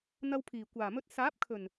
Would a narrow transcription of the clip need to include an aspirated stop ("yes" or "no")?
yes